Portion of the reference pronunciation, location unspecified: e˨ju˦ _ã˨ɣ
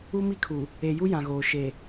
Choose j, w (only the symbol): j